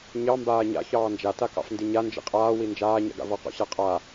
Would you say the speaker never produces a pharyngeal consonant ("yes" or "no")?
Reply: yes